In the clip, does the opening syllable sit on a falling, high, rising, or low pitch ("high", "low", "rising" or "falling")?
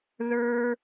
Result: high